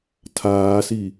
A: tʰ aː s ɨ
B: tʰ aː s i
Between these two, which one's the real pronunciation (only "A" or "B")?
B